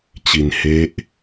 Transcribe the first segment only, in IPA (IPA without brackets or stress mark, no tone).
t͡ɕ